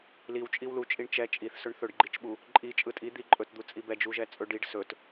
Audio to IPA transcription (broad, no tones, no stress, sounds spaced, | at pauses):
l i w t͡ʃʼ i w l u t͡ʃʼ i ɳ t͡ʃ ɛ t͡ʃʼ i θ s ɵ ɳ θ ɵ ɖ ɡ͡ǃ i t͡ʃ ɓ u | ǃʼ i t͡ʃʼ ɯ tʼ i d̪ i ǃʼ ɵ t d̪ u t͡sʼ i b ɛ d͡ʒ u ʒ ɛ t͡sʼ ɵ ɖ i ɖ s ɵ t